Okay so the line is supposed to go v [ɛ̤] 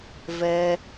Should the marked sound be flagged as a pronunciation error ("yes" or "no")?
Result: yes